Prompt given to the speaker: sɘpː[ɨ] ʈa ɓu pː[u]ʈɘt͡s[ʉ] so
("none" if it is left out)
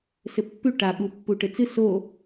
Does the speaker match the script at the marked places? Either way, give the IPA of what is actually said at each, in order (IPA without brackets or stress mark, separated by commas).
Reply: ʉ, u, ɨ